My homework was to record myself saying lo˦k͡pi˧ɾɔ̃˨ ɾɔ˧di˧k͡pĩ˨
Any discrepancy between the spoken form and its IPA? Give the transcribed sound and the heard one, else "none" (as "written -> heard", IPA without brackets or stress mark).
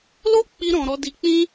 ĩ˨ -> ĩ˦